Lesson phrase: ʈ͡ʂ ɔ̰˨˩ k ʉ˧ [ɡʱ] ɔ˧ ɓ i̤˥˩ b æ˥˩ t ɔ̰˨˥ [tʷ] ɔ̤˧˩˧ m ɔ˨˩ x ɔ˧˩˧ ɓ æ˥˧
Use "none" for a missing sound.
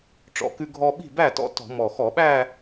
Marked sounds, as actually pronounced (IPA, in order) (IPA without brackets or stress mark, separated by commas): ɡʱ, t